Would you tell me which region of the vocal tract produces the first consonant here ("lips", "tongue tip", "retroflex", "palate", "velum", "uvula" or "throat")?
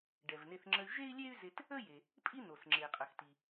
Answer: retroflex